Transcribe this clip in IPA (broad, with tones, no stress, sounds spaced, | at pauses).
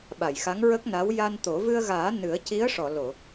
ɓ a˨˩˨ j x a˧˥ ŋ ɹ ə˦˥ k̚ n a˧˥ w j a˧ n t̪ o˨˩˦ v ɨ˧ ə̯ ɣ aː˨˩˦ n ɨ˨˩˦ ə̯ c i˧˥ ə̯ ʂ ɔ˨˩˨ l o˨˩˨